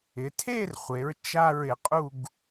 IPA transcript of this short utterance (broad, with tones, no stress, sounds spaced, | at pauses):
ɪ˩˧ tʰ e˥˧ r χʷ e˩˧ ɹ t͡ʃ a˥˧ ɹ ɪ˩˧ qʼ u˥˧ ɡ